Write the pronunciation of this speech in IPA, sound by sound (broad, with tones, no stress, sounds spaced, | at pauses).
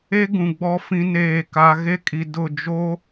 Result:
e˦ ɡ ũ˨ ɡ͡b ɔ˦ f ĩ˦ n eː˦˨ k a˦ ɣ e˦ kʼ i˨ d ʊ˦˨ d͡ʒ o˦